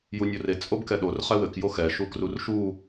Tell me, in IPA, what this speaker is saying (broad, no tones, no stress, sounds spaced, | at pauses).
j u nʲ o r e t͡sʼ o b k ɛ ɗ o r χ ɛ w ɘ k j o x ɛ ʃ u k r u r ʃ u